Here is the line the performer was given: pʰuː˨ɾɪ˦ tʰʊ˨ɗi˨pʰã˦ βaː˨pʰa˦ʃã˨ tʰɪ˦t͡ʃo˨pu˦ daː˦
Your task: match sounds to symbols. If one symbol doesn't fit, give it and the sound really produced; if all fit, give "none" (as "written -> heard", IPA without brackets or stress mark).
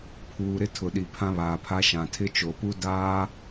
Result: none